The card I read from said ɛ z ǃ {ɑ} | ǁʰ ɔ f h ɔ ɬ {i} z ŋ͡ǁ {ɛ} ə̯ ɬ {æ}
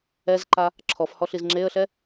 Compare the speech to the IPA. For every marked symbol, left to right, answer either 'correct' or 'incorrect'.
incorrect: a, correct, incorrect: e, incorrect: ɛ

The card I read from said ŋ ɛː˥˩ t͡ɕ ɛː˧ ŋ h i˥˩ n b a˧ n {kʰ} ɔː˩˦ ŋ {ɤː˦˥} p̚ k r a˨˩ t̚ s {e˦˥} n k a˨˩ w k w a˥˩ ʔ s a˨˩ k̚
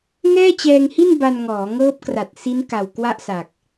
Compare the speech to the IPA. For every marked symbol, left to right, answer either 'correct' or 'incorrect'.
incorrect: ŋ, correct, incorrect: i˦˥

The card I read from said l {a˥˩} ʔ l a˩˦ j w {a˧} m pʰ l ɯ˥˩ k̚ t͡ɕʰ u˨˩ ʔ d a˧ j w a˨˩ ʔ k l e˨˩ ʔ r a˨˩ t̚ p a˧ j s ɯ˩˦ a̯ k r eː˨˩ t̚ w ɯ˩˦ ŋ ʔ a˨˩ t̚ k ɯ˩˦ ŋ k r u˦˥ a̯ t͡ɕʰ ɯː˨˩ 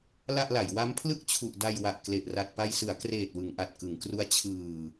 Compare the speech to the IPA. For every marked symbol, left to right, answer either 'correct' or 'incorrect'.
correct, incorrect: a˦˥

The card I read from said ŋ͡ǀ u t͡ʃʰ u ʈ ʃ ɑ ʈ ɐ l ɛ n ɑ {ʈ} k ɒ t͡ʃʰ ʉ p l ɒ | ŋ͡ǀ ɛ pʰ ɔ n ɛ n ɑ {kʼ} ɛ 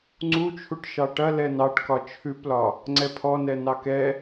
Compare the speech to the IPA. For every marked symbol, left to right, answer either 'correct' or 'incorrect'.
correct, incorrect: k

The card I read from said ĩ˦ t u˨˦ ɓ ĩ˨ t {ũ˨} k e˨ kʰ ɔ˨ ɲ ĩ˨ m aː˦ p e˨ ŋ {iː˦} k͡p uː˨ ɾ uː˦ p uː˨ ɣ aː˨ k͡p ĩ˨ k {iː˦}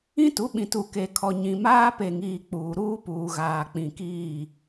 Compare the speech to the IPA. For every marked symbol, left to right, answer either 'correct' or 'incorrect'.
incorrect: u˨, incorrect: iː˨, incorrect: iː˦˨

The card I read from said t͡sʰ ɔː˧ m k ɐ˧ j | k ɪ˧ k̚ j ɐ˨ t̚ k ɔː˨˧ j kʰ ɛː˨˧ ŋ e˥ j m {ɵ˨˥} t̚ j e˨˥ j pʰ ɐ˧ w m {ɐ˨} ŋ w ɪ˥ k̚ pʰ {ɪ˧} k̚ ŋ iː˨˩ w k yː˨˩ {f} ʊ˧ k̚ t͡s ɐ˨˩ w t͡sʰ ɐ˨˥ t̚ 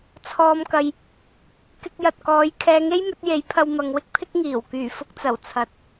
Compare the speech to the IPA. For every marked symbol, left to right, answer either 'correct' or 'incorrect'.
correct, correct, incorrect: ɪ˥, correct

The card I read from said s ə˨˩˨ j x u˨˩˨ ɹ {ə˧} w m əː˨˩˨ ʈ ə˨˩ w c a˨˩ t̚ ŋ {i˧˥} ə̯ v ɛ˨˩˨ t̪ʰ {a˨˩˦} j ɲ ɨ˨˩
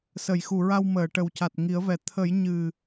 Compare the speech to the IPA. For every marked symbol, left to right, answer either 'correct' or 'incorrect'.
incorrect: a˧, incorrect: i˨˩˦, incorrect: ə˨˩˦

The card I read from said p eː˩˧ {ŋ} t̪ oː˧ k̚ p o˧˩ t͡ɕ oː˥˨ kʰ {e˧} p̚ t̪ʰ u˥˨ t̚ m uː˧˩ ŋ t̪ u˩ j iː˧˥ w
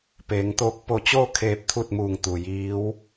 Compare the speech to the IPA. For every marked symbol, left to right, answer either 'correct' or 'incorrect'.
correct, incorrect: eː˧

